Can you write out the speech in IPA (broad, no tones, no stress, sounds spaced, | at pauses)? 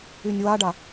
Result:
y nʲ w a ɖ a